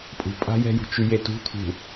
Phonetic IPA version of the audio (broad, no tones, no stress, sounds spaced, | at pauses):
pʼ ṳ pʼ a̤ j ɛ̤ j ṳ t͡ʃ y j e t ṳ t̪ʰ ṳ